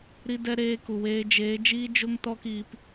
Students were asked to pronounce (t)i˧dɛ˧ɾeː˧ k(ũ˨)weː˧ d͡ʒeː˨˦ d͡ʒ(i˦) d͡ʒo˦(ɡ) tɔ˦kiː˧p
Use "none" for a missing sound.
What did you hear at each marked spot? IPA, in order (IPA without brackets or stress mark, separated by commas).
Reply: ɾ, u˨, iː˦, ŋ